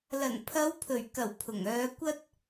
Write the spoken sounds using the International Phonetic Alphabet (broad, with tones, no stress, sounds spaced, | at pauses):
l ɐ˨˩ n pʰ ɐ˨˧ w pʰ ɵ˨˩ ɥ k ɐ˨˩ w pʰ ʊ˨˩ ŋ œː˨˧ kʷ ɐ˥ t̚